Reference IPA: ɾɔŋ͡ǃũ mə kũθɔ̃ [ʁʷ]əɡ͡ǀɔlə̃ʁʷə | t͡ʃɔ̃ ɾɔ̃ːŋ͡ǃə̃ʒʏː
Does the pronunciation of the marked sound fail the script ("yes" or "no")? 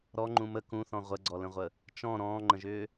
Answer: no